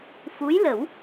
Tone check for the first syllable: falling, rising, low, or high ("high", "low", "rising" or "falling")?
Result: rising